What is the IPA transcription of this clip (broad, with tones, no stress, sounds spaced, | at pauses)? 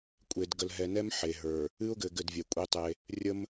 kʷʼ e˨ d ɡ ə˨ l ɦ ɛ˨ n ɛ˦ m ħ e˨ ɦ ə˞˨ | ɨ˦ ʊ̯ ɡ ɘ˨ ɡ ɘ˦˨ d vʲ ɛ˨ kʷʼ i˦ tˤ e˦ | rʲ ə˦ m